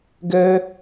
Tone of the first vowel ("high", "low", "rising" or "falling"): high